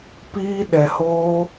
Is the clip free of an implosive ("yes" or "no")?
no